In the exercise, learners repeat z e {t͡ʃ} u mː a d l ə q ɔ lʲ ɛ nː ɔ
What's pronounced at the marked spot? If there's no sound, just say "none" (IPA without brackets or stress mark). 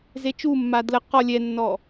t͡ʃ